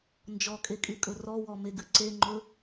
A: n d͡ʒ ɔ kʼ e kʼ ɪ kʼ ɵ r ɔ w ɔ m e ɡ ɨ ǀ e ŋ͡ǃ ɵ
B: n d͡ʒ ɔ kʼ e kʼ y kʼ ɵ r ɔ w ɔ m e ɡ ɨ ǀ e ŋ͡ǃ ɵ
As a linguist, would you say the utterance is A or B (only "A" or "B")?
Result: B